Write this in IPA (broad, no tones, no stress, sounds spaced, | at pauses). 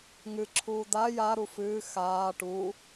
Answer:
ŋ ɨ ǁʰ uː d a j a ɾ u f ɨː x aː ʈ u